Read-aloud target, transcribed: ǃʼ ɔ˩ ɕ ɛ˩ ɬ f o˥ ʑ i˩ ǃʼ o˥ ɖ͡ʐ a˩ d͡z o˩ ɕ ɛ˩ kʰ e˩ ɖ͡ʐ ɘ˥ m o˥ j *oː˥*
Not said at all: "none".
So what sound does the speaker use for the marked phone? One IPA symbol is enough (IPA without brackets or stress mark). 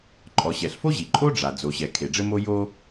o˥